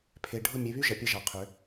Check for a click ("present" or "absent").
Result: absent